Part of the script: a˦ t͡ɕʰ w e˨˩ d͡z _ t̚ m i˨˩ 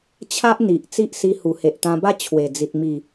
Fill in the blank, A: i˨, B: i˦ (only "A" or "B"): A